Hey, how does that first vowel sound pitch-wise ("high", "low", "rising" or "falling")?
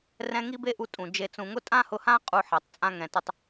high